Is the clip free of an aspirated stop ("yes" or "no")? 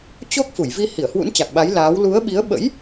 yes